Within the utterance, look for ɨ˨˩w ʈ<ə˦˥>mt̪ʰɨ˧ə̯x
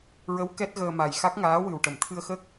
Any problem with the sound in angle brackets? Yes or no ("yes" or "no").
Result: yes